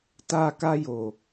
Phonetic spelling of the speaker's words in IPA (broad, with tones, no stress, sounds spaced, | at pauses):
t a˦ k a˦ j o˨